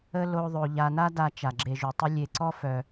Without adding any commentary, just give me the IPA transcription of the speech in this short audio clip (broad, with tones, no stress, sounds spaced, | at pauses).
ə˥ l o˦ ðˤ o˨ ʎ a˨ n a˦ d a˨ t͡ʃ a˩ ɡ͡ǁ e˨ ʒ u˩ tˤ i˦ lʲ e˨ ǀ ɔ˥ f œ˩